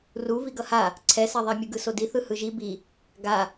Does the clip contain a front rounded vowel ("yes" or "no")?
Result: no